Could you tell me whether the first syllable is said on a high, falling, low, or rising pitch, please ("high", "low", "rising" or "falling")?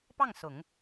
falling